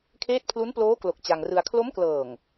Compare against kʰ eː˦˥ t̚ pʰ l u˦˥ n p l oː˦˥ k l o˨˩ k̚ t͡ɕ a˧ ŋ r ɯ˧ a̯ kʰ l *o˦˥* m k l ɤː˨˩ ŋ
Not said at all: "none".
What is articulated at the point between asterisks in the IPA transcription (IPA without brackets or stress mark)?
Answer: o˦˥